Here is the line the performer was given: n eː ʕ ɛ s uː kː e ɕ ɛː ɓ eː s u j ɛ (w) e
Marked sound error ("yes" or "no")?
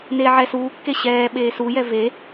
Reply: yes